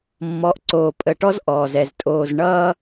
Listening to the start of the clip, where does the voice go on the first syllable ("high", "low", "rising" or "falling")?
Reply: rising